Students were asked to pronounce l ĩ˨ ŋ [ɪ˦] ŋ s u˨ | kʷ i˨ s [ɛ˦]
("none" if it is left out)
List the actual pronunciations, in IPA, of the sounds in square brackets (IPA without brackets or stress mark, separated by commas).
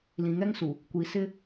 ɛ˦, ɪ˦